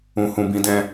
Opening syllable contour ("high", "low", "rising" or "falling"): low